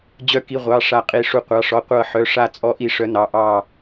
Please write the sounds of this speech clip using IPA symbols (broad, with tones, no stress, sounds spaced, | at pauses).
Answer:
d͡ʑ œ˨˦ k i˩˧˩ ʁʷ ɑ˩˧˩ ʂ a˧˩ qʼ i˩˧˩ ʂ u˧˩ qʷ ɑ˩˧˩ ʂ ɔ˩˧˩ qʷ ɤ˧˩ ħ œ˩˧˩ ʂ a˧˩ t͡sʼ ɔ˨˦ ʔ i˧˩ ʂ œ˨˦ n ɑ˩˧˩ ʔ ɑ˧˩